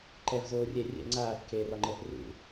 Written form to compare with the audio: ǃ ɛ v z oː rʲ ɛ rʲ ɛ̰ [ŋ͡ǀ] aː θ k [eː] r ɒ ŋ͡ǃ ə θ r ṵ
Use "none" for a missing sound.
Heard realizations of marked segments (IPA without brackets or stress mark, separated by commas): ŋ͡ǀ, eː